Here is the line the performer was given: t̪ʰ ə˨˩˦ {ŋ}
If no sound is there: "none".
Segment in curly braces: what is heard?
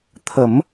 m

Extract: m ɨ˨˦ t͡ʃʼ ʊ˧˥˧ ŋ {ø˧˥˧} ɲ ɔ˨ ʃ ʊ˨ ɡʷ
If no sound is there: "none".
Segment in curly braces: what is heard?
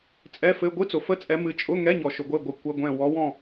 ɛ˧˥˧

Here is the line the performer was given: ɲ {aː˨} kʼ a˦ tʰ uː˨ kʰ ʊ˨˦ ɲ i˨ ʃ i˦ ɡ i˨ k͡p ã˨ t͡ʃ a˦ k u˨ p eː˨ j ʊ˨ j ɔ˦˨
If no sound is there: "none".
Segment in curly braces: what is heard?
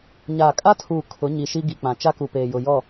aː˨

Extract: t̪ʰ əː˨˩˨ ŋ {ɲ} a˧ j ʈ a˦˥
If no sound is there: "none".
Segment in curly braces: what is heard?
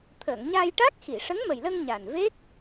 ɲ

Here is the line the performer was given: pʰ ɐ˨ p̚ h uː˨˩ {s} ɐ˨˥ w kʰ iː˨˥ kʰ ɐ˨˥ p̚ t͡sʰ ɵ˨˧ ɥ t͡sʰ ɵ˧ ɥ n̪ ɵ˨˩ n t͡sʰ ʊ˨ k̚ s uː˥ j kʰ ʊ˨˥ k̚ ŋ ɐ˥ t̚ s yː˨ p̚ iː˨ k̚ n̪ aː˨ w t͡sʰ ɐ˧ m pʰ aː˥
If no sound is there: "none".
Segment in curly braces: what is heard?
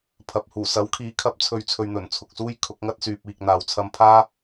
s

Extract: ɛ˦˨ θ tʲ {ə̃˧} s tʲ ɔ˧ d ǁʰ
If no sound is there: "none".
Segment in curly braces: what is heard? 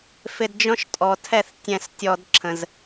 ɛ̃˧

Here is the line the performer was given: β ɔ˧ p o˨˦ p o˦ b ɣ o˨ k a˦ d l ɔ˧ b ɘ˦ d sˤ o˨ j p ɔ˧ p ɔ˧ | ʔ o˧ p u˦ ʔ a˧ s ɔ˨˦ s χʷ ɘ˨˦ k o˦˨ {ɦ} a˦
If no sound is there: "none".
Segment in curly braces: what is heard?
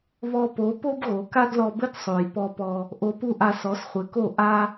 ʔ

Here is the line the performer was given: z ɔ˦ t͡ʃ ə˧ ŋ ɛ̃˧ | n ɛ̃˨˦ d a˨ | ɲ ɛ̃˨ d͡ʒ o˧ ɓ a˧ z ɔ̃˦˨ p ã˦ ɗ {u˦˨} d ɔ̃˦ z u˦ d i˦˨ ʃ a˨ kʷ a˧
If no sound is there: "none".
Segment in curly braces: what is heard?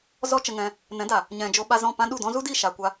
u˦˨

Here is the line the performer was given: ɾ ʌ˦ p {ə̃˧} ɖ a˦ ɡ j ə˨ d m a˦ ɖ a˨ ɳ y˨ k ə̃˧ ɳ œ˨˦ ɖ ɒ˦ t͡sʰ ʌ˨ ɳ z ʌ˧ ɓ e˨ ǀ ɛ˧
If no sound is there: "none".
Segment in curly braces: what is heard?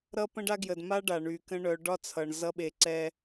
ə̃˦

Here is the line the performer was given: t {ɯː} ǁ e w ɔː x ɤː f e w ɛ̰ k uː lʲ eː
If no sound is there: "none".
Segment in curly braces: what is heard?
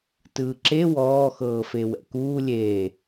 ɯː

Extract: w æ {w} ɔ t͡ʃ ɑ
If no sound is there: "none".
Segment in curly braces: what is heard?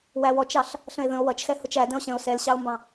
w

